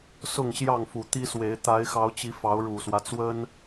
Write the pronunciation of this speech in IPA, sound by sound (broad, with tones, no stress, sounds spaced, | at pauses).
s ʊ˥˨ ŋ ɕ j ɑ˥˨ ŋ f u˨˩ t̪ i˦ s w e˨˦ ɪ̯ t̪ a˨˦ ɪ̯ x ɑ˨˦ ʊ̯ t͡ɕ i˨˦ f ɑ˨˦ ʊ̯ ɻ u˨˩ s w ä˦ t͡s w ə˦ n